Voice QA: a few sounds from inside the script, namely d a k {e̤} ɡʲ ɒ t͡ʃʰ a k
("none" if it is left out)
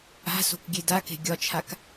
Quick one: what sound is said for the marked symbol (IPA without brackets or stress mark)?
e̤